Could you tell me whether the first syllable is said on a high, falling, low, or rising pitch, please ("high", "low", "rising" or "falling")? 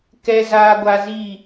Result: high